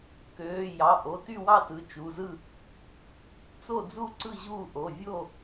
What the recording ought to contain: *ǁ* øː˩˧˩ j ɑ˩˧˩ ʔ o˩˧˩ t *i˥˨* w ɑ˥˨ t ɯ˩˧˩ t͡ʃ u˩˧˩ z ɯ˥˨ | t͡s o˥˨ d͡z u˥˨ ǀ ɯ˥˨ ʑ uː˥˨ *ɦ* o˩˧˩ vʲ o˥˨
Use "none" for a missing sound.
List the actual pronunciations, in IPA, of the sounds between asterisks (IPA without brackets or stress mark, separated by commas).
k, y˥˨, ʔ